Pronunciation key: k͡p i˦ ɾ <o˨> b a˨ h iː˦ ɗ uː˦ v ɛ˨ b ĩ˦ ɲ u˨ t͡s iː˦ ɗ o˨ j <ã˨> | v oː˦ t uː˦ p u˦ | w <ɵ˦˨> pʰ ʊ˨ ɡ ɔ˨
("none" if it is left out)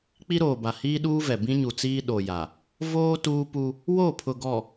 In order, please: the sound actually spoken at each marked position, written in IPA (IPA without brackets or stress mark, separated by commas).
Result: oː˨, a˨, o˦˨